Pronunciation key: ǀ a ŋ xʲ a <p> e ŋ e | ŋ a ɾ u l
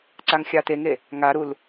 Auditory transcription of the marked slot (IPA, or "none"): t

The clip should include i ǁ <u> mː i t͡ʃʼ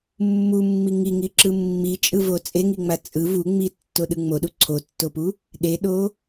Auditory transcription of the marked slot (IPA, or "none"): ɯ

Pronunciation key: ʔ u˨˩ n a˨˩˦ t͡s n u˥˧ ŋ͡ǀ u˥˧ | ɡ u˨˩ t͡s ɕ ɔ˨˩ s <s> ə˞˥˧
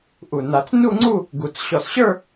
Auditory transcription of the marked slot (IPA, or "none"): ɕ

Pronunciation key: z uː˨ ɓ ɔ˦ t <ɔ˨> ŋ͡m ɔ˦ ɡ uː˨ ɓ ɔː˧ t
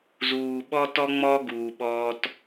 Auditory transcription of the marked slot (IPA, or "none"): ɔ˦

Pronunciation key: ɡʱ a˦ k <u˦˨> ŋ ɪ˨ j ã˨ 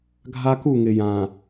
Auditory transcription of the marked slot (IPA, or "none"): u˦˨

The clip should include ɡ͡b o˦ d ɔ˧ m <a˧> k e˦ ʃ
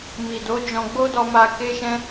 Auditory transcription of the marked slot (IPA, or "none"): a˧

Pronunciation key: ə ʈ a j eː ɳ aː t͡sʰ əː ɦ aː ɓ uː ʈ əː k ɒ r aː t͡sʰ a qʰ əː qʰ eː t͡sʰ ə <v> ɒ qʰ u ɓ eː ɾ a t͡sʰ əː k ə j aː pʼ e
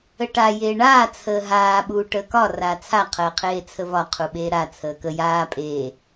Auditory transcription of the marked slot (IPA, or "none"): v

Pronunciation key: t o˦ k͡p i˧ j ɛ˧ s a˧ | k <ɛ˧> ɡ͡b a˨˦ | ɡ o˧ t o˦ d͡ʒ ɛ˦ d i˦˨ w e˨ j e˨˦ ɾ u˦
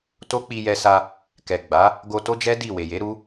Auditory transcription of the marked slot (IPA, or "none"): ɛ˨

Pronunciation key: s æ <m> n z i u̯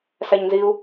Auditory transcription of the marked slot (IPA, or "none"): ɲ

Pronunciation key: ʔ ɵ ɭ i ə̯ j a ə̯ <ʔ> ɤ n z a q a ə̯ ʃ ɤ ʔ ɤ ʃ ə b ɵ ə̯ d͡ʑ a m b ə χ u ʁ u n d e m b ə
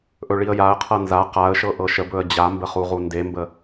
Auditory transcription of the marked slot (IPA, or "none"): qʰ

